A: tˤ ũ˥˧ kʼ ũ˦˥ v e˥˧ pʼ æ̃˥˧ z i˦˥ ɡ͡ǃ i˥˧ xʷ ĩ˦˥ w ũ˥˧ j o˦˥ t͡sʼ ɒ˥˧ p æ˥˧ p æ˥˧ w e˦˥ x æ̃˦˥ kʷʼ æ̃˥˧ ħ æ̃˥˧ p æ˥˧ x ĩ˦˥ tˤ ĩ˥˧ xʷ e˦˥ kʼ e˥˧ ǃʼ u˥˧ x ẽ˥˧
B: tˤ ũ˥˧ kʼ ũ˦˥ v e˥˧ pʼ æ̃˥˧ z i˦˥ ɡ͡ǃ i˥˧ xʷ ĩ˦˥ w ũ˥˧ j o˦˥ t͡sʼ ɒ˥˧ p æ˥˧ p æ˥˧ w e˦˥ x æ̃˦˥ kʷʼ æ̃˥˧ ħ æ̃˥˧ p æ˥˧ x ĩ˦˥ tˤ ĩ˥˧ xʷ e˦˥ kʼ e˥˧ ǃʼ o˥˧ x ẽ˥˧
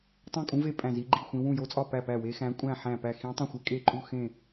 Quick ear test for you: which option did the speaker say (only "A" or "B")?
A